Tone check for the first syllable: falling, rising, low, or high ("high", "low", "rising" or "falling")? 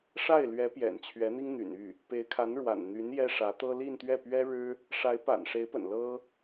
falling